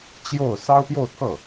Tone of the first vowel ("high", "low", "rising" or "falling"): falling